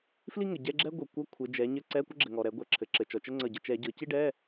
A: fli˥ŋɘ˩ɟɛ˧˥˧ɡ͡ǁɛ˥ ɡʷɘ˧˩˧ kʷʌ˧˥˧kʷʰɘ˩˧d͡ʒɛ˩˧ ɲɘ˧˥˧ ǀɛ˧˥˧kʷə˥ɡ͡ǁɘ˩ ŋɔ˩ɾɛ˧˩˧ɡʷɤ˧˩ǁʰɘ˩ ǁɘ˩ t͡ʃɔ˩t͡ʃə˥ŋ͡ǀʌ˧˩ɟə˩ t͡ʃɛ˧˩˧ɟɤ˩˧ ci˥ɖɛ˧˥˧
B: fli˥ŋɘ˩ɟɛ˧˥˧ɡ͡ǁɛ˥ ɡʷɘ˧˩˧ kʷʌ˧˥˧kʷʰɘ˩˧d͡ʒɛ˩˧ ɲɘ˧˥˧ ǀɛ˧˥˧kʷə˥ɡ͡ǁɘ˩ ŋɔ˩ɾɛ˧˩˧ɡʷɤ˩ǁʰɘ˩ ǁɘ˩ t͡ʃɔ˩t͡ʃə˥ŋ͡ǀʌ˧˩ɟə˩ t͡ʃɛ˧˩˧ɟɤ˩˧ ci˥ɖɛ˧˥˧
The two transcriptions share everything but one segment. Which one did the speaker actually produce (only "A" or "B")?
B